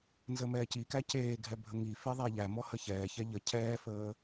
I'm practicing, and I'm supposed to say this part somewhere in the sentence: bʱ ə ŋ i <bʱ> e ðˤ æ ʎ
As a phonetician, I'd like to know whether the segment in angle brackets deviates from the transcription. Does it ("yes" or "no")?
yes